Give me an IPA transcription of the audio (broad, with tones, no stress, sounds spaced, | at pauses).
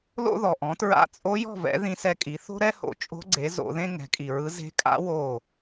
l o̰˥ ð ɔ˨ ʔ ɔ̃˩˥ t ɹ a̰˧˥ t͡sʼ o˧˥ j ɔ̤˥˨ v ɛ̰˩˥ ð ĩ˧˥ s ɛ˧˥ kʼ i˩˥ θ o̤˥ ɾ ɛ˥ h o̰˩˥ t͡ʃʼ o̤˧˥ ɡ͡ǀ e˩˥ z o̰˩˥ ð ẽ˥ ŋ ɛ̤˩˥ kʼ i˨ ɹ ɯ˧˥ z e̤˧˥ kʼ a̰˧˥ w o˥˨